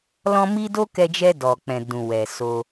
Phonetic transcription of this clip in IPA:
l ɔ̃˧ m i˧ d o˦ k ɛ˧ d͡ʒ ɛ˧ d ɔ˨ k͡p ɛ̃˨ d ũ˨ w ɛ˨ s o˧

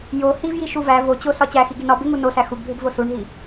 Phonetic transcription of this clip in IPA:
j o h i v j i ʃ u v æ v o t͡ɕ o s ɒ t͡ɕ æ x i ɡ i n ɒ b e ŋ u n o s æ x u ɡ bʱ e ɡ v o s u ɳ ɦ i

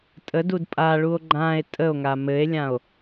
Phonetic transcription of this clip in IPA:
tʼ ə d u d pʼ a ɭ u o̯ ɡ͡ǃ ã e̯ tʼ ə o̯ ŋ a m ɘ e̯ lʲ ã o̯

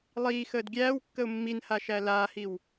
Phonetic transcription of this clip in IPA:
lˠ iː x əː d ɡʲ æː w kː ə ʊ̯ mː i n h a ʃ æ l aː h i w

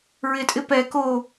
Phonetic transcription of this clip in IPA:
ɹ ɪ tʼ ɪ p ɛ k o

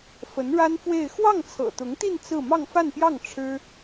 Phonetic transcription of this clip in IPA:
f ə˧˥ n ɻ a˥ n f w e˥˧ ɪ̯ x w ɑ˥˩ ŋ t͡sʰ ɤ̰˨˩ t̪ ʊ˧˥ ŋ t̪ i˥˧ n t͡s ɹ̩˥˧ m ɑ˥˧ ŋ f a˥˧ n p j ɑ˥˩ ŋ ʈ͡ʂʰ ɻ̩˥

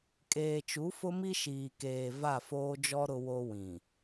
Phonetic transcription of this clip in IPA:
kʼ eː˨ t͡ʃ u˨˦ f ʊ˦ m i˦ ʃ iː˨ k eː˨ v a˦˨ f oː˦ d͡ʒ ɔ˦ ɾ ʊ˦ w o˦ w ĩ˨

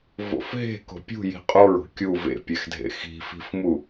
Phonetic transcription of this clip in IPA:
v o̰ f ɦ e̤ k o̤ pʲ ṳ j i̤ qʼ o ɹ o̤ kʲ u v ḛ pʲ ɛ x dʱ ḛ x i̤ f i̤ f m u

